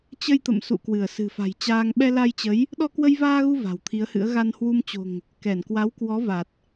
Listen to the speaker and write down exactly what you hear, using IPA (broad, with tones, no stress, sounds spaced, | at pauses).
t͡ɕ ə˧ j t̪ ə̰˧˨ m s ṵ˧˨ k w ɨ˧˩ ə̯ s ɨ̤˨˩ f a̤˨˩ j t͡ɕ aː˧ ŋ ɓ ɛ˧ l a˧ j t͡ɕ ə˨˦ j | ɗ ɔ˧ k w ə˧ j v aː˧ ɣ u˧ v a̤˨˩ w t̪ʰ i˨˦ ə̯ h ɨ̰˧˥ ə̯ ɣ a˧ n h w u˧ m t͡ɕ o̤˨˩ ŋ | k ɛ˧˩ n k w a˨˦ w k w ɔ˨˦ v a˨˩ t̚